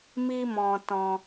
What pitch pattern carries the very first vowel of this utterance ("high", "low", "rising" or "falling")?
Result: high